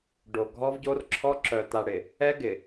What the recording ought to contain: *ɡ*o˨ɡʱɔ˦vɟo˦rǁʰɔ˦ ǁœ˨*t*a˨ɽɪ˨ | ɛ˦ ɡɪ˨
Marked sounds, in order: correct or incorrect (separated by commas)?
incorrect, correct